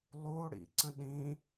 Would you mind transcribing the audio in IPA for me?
lˠuo̯ɽḭǀə̃ ɗĩ

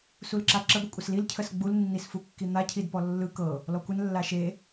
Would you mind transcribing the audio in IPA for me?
sulǁaǁə ɡʷəkʷʼəslil cʰəsɡ͡bul nːisfukːin̪a cʰidpɔlːɯ kɤ | lɔkʷən lːaʃe

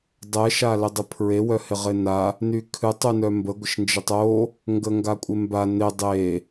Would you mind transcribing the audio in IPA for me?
dˤɛ ʃalɪdˤɪpʰɹe wœhɪʁɪna | nykʰɨtˤ ynœmbə ɡʷɪʃnd͡ʒɪtˤo | ŋɡəŋɡakʷʼɪmba nɪ dˤe

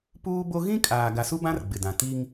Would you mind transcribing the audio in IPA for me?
puː˦bo˦ ɣĩ˦kʼaː˨ ɡa˨su˦bã˦r ɡ͡bɪ˨dã˨ ti˦ŋ

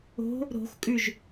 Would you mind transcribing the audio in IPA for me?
o̤ | ɾo̤xkʼʉʒ

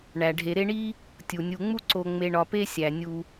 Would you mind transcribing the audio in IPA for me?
ɳæ˩ɖʱe˨ɾe˦ɳi˥ | tʲu˩nʲu˨ŋ͡mu˥ ǀo˨ŋ͡me˨ ɳɒ˨pe˥sʲæ˩ nʲu˨

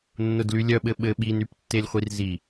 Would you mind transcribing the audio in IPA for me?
nːʊdlylʲœ ɓɘɓɘ ɓinyptːelʲχʷir zi

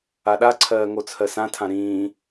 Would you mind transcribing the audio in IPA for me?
aɗaǀʰɜː ŋot͡sʰɜsãtʰã ɾĩː

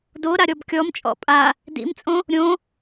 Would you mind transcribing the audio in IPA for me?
do ɾaɾʲɔbkʲɔmt͡ʃʼɔ̰ pʼa | dḭmt͡sʼõ | ɾʲõ

